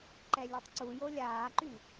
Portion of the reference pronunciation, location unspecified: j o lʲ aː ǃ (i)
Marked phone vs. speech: incorrect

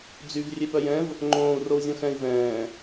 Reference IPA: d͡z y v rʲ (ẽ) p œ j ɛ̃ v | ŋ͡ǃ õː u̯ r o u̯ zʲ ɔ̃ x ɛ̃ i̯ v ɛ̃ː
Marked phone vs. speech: incorrect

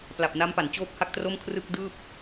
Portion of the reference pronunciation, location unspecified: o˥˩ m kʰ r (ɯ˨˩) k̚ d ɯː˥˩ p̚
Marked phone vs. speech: incorrect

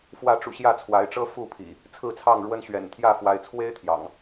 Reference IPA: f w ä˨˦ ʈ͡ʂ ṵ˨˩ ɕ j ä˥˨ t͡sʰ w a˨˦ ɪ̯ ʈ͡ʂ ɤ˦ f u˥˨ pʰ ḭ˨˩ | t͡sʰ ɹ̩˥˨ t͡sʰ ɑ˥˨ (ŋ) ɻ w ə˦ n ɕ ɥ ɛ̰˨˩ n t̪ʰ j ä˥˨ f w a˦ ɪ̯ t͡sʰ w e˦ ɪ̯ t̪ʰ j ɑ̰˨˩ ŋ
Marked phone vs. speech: correct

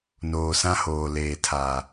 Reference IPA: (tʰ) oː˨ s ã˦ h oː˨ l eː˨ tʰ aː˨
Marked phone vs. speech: incorrect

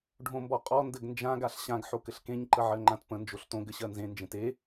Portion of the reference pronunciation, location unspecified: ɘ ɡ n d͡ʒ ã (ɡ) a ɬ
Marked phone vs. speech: correct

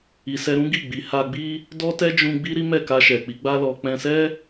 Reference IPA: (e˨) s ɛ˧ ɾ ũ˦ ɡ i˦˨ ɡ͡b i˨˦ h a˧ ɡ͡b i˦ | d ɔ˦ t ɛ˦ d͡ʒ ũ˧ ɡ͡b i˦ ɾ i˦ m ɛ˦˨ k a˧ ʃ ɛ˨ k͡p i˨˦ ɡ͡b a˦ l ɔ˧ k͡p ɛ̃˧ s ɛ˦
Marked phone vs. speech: incorrect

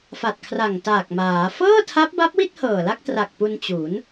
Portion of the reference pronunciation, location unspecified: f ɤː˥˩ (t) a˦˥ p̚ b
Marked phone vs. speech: incorrect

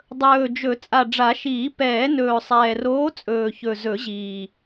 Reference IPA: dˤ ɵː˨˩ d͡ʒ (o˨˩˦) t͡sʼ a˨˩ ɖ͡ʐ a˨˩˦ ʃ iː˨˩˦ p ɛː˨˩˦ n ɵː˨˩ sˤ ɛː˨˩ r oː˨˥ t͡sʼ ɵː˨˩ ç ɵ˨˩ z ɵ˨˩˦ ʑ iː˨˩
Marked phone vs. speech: incorrect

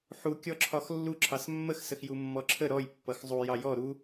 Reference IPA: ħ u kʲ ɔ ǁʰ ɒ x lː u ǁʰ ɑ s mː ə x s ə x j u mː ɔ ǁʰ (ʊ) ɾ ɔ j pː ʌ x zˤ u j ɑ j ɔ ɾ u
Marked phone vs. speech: incorrect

